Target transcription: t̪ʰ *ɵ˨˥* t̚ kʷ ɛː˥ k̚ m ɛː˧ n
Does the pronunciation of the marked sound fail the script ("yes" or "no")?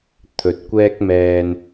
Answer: no